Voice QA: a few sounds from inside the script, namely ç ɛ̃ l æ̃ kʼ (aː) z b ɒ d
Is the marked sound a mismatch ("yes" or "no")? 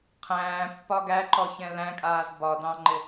no